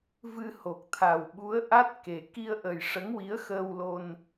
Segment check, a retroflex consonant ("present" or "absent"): present